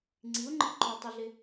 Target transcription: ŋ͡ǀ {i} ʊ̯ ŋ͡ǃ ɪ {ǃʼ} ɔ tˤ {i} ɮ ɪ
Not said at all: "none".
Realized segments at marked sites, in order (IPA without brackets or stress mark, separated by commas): i, ǃ, i